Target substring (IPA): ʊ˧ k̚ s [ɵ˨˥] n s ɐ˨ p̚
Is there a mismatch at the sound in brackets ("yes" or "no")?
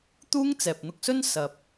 yes